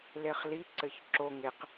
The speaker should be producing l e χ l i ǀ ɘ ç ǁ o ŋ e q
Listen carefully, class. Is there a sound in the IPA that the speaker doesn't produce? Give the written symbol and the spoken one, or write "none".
none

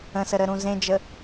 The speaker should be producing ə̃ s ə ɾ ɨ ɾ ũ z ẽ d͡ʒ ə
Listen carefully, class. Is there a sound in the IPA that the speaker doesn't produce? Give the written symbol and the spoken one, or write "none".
ɨ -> ə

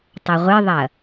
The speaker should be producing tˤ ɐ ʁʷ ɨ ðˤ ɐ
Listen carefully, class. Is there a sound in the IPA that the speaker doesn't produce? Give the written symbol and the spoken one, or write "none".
none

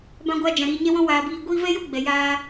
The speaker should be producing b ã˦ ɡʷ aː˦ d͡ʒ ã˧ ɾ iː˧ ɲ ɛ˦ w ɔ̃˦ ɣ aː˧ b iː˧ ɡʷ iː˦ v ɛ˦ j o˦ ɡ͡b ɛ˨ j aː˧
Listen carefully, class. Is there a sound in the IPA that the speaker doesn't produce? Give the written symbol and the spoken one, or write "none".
ɣ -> w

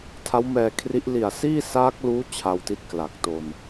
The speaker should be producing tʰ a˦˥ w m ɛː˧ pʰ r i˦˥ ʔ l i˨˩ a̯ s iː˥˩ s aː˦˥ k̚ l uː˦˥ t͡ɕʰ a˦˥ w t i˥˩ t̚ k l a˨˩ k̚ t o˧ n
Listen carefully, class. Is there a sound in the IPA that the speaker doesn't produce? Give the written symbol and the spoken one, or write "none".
pʰ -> kʰ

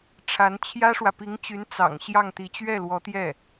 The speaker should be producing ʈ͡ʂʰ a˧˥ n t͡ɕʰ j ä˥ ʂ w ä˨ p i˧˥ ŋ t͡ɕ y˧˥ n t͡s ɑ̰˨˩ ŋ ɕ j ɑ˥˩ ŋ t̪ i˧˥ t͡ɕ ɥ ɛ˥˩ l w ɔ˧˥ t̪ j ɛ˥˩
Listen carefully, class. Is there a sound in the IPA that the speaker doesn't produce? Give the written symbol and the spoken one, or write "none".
none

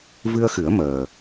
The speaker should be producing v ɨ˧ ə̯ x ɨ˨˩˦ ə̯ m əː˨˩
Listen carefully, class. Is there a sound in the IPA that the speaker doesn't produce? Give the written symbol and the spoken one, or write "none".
none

